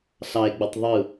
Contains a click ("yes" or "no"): no